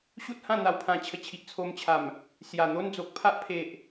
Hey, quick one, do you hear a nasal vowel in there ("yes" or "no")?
yes